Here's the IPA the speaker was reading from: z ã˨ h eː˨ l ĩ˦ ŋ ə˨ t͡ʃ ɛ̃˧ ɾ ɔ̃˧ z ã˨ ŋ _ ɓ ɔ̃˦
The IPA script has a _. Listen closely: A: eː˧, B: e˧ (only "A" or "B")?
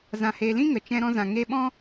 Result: B